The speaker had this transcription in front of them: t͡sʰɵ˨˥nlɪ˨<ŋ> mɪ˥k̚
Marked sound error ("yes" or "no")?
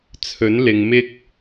no